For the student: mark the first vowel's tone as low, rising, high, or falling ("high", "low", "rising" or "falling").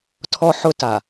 high